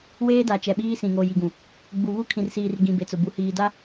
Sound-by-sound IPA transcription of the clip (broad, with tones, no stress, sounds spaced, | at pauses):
w eː˦ d a˨ t͡ʃ ɛ˨ ɓ iː˦ s ĩ˨ ŋ o˨ j i˨ ɡ ũ˨ | ɡ͡b u˨ β u˦ kʰ ĩ˨ r s iː˨ r ɡ ĩ˨ b e˨ t͡s ʊ˨ b u˨ h iː˨ d a˦